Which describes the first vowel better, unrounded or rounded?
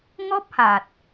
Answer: rounded